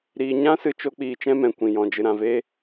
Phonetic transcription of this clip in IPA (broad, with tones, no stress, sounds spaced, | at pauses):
ɾ iː˧ ɲ ã˦ s ɨ˧ t͡ʃ o˦ k͡p iː˧ t͡ʃ ɛ̃˦ m ɛ̃˨ kʷ ĩ˨ j ɔ̃˨ d͡ʒ ɨ˨ ɾ ã˨ v eː˧